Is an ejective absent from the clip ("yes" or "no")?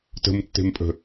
no